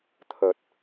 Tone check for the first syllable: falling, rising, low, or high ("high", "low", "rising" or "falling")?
low